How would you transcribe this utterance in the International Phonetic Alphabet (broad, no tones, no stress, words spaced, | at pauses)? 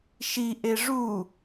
ʃiʔe ʐu